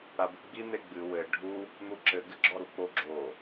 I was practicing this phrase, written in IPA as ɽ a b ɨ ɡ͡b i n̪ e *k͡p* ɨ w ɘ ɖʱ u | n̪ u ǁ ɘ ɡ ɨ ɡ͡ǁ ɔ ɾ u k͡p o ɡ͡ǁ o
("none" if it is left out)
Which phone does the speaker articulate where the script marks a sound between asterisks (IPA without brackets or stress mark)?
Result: ɡ͡b